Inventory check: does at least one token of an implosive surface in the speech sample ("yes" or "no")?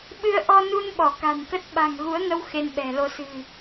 yes